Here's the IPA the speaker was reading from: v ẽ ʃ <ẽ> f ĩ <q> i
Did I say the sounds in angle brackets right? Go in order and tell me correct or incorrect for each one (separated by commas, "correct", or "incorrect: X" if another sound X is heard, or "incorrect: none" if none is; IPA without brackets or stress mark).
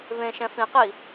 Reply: incorrect: ɛ̃, correct